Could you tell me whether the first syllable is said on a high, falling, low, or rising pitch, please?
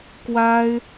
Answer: high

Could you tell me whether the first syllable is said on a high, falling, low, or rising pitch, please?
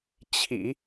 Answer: low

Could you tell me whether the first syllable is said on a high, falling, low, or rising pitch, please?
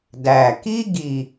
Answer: low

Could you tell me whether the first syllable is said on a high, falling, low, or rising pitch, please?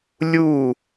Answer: falling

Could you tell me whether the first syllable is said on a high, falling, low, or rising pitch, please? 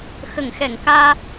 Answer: low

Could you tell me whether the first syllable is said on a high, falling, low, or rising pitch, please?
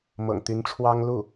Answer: low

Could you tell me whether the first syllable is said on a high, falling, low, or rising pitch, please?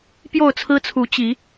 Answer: falling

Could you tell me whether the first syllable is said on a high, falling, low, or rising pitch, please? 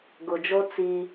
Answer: low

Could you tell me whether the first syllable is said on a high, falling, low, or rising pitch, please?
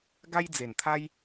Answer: high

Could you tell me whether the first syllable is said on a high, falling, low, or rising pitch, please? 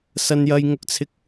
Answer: high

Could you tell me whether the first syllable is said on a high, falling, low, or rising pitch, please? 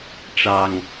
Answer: low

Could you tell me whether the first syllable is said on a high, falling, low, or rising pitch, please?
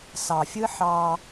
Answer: low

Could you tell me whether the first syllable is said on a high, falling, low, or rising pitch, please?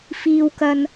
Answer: high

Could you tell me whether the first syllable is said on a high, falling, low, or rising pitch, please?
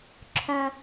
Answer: high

